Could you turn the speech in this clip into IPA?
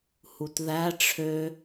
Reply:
h u t ð æ ʈ͡ʂʰ ø

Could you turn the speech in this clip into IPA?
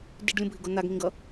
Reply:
d i ɖ lʲ ũ bʱ i ɡ o n̪ a ɡ ŋ ĩ ɡ ʌ

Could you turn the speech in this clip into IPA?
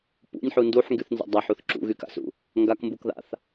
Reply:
p ṵ nʲ ħ u n d u ħ ŋ ɡ y θ n z a̰ dˤ a ħ u θ ǁ ṵ ɣ y k a̰ s ṵ | ŋ ɡ a k m b u k ð a̰ θ

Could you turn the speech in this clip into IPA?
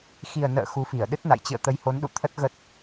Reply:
x i˨˩ ə̯ n ə̰ː˧˨ x u˨˦ f i˧˩ ə̯ ɗ ɨ˦˥ t̚ n a̰˧˨ j t͡ɕ ɨ̰˧˨ ə̯ t̪ ə˨˦ j h o˨˦ n ɗ ṵ˧˨ t̪ʰ ə˦˥ t̚ ɣ ə˦˥ t̚

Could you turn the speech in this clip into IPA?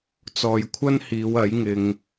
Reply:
t͡s ɔː˨ j kʷʰ ɐ˥ n h iː˨˧ w ɐ˨˥ j ŋ ɪ˧ ŋ

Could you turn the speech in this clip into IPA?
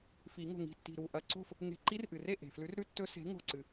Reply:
f i˨˩˦ ŋ o̤˧˩ ŋ i̤˧˩ tː i̤˧˩ ɾ u˧˩ ʔ ɐ˧˩ ǀ o̤˥˨ f | ŋ e̤˧˩ ǃ i˦˥ r ʔ ɨ˩ r e˥˨ ʔ e̤˩ f l ʉ˨˥ r ɾ ʉ˦˥ tː ɵ˦˥ s e̤˨˥ ŋ o̤˧˩ ǀ ɨ˩

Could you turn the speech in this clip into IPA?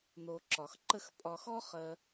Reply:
n̪ o˨ ǁ ɒ˩ x ǃ ə˥ x pʼ ɒ˨ x ɔ˥ χ ɜ˨

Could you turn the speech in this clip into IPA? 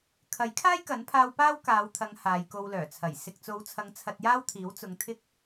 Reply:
kʰ ɐ˨˥ j kʰ aː˥ j k ɐ˨˥ n pʰ aː˧ w p aː˥ w k aː˨˧ w t̪ʰ ɐ˨˧ ŋ h aː˨˧ j k o˧ w l œː˨˩ t͡sʰ ɐ˨˩ j s ɪ˨ k̚ t͡s o˨˧ w t͡sʰ ɐ˨˧ ŋ t͡sʰ ɐ˧ t̚ j aː˥ w t̪ʰ iː˨˥ w t͡s ʊ˨˧ ŋ t̪ʰ ɪ˥ k̚

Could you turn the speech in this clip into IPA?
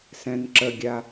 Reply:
s ɛ̃ n ǁ ə ɡʲ a

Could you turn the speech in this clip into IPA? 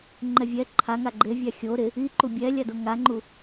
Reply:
ŋ͡ǃ ɛ vʲ ɛ ǃʰ a ŋ a ɡ͡ǃ e vʲ a xʲ o ɾ ɪ | i ǃ u bʲ ɛ lʲ a d o ŋ a ŋ͡ǃ u

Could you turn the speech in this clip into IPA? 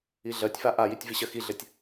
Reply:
i ɮ ɜ tʲ f a ʔ a j i tʲ v i ɕ ɜ x i ɮ ɘ tʲ

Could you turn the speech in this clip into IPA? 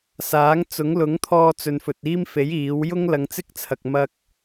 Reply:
s aː˨˥ ŋ t͡s ʊ˨˥ ŋ l ʊ˨˥ ŋ t̪ʰ ɔː˧ t͡s ɵ˨ n f ɵ˨ t̚ iː˥ m f e˨˥ j iː˨˥ w j ʊ˥ ŋ l ɐ˨˧ ŋ t͡s ɪ˥ k̚ t͡sʰ ɐ˨ k̚ m ɐ˥ k̚

